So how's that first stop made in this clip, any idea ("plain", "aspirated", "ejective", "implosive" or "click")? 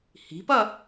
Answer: plain